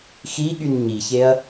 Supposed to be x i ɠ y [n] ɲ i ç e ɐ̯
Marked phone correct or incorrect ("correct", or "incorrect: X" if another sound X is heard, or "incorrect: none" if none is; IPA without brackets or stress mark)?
correct